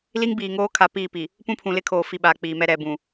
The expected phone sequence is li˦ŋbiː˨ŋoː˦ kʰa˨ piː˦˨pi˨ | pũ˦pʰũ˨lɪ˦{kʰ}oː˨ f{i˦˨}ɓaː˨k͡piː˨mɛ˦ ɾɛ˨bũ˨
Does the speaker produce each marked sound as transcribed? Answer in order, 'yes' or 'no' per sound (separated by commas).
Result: yes, yes